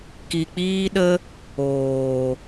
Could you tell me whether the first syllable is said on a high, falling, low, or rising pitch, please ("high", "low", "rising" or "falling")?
low